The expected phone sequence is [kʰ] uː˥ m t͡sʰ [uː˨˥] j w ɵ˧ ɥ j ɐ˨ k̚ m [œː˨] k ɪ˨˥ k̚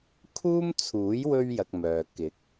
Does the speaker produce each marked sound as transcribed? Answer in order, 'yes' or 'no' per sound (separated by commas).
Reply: yes, yes, yes